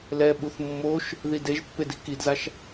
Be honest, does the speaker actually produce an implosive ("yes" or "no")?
yes